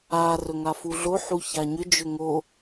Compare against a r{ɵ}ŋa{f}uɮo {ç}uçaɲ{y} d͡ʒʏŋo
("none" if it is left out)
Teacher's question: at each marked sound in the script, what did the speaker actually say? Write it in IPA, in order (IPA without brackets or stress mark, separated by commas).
ɵ, f, ħ, ʏ